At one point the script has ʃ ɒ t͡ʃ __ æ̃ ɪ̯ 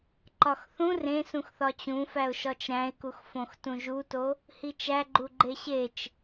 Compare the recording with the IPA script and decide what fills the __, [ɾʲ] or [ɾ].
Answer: ɾ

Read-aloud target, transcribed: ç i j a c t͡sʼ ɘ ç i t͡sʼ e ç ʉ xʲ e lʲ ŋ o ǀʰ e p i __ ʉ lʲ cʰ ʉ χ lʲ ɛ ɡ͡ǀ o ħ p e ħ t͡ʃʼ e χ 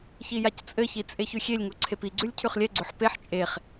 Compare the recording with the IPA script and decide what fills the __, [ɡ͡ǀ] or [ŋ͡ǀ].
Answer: ɡ͡ǀ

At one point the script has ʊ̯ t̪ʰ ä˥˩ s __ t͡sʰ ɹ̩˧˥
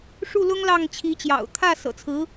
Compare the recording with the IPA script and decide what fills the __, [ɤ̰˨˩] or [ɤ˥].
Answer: ɤ̰˨˩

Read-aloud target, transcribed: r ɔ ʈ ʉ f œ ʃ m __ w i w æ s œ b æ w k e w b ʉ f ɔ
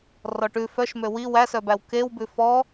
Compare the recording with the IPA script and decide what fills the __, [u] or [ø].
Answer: ø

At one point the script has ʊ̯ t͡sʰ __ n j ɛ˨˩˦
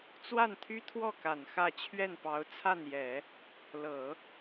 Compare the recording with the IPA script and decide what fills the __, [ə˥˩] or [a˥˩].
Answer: a˥˩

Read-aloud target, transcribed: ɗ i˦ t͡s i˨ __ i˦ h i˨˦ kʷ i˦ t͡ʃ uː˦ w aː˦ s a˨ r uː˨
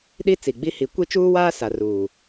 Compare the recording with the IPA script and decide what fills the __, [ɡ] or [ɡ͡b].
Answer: ɡ͡b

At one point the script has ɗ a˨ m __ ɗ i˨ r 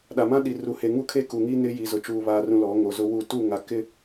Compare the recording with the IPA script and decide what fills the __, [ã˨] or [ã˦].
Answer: ã˦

